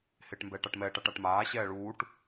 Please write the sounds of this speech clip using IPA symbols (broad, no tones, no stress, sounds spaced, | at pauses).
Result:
h ɪː ʈ m b ɛː ʈ a ʈ m ɛː ʈ a ʈ a ʈ m aː ɕ ɛː ɭ uː ʈ